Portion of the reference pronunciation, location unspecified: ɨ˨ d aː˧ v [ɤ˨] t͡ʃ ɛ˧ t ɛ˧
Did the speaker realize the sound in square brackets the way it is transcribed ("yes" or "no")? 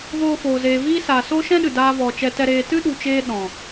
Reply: no